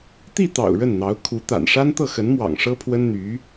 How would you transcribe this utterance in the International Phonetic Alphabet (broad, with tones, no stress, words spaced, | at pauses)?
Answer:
t̪i˥˩t̪ɑ̰˨˩ʊ̯ ɻə˥˩nn̪ɑ˧˥ʊ̯ kʰu˧˥t̪a̰˨˩n ʂa˥nt̪ɤ˥˩xə˧˥nmwɑ̰˨˩ŋ ʂɤ˥pʰwə˥n n̪y˧˥